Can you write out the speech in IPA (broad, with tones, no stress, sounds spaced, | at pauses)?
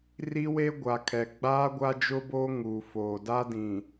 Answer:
r i˦ w e˦ ɡʷ a˨ kʰ ɛ˨ ɡ͡b aː˦ ɡʷ a˦ d͡ʒ ʊ˦ b oː˦ ŋ uː˨ f oː˨ d a˦ d ĩ˨